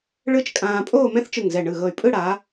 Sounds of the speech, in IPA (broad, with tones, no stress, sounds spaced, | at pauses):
ɭ ɯ˥ t͡ʃ kʼ ãː˧ pʼ oː˥˧ m ɛ̃˥ θ t͡ʃ ɯ˧˩ ŋ z ɛ˧˩ ɳ ɯ˧˩ ɣ ɤ˧˩ y̯ pʼ ɯ˥˧ ɽ a˩˧